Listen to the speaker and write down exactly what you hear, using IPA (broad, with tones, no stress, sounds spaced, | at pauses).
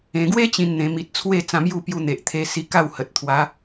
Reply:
ẽ˨˩ ɡ w e˦ t͡ɕ ĩ˧ n n̪ ẽ˨˩ m i˨ t̚ t͡sʰ w e˥˧ t͡s ã˧ m j u˥˧ p j u˧ n̪ e˨ ʔ t̪ʰ e˧ s i˧ k a˥˧ w h ə˨ t̚ t̪ʰ w a˨˦